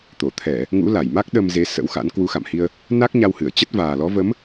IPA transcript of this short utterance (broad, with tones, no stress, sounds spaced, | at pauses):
t̪ o˧˩ t̪ʰ ɛ˧˩˨ | ŋ ṵ˧˥ l a˧˩ j m a˦˥ k̚ ɗ ə˧ m z e˨˦ s ə̰˧˥ w x a̰˧˥ n k w u˨˦ x a̰˧˨ m h i˧ ə̯ | n a˦˥ k̚ ɲ a˧ w h ɨ˧˩ ə̯ t͡ɕ ə˦˥ t̚ v aː˨˩ l ɔ˨˦ v ə˨˦ m